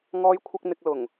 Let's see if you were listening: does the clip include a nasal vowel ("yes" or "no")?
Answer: no